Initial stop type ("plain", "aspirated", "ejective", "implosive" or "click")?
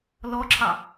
click